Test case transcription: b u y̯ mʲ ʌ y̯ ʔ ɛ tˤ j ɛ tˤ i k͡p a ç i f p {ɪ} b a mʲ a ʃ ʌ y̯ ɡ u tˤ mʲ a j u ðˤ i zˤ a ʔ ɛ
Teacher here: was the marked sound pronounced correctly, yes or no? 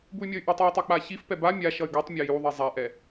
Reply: no